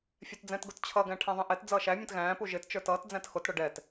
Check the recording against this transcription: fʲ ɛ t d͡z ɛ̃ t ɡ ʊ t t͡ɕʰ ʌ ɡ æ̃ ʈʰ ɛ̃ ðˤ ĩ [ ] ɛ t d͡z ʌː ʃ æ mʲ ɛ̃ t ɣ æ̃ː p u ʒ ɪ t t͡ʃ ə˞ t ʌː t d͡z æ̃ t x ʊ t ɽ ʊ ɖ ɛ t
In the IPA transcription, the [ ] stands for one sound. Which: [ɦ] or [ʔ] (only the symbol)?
ʔ